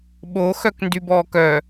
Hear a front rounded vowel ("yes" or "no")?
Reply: yes